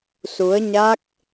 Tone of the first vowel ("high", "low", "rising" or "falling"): rising